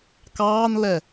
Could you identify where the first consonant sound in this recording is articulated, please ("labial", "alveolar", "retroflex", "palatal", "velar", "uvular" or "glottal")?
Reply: velar